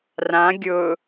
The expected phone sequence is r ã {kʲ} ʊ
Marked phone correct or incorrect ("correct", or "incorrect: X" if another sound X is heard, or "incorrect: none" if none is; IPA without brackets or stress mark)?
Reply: incorrect: ɡʲ